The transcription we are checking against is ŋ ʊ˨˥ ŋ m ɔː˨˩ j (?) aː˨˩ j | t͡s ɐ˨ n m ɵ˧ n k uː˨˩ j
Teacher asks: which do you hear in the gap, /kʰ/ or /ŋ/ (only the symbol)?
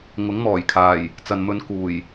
kʰ